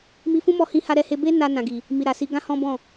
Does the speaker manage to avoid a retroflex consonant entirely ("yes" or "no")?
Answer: yes